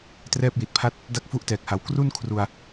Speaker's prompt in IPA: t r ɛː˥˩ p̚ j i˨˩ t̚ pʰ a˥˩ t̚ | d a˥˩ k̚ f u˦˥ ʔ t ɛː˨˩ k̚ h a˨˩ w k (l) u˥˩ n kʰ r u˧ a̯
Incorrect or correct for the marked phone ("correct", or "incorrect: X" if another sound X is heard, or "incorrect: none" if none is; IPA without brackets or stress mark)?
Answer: incorrect: r